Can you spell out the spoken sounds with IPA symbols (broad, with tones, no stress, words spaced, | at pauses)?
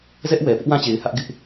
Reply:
zɛ˦ʔwɛ˨ pɪ˦ʔwã˦t͡ɕe˨ɪ̯ hä˦ʔɡɪ˦ʔ